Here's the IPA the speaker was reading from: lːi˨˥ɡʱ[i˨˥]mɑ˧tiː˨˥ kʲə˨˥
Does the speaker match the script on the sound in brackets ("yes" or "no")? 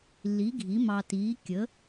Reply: yes